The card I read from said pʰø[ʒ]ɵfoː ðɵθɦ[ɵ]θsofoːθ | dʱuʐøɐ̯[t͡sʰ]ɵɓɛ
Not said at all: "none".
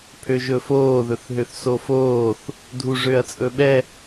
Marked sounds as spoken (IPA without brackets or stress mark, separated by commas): ʒ, ø, t͡sʼ